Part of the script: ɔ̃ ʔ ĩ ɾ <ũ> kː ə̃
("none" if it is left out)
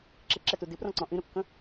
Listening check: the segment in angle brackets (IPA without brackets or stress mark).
u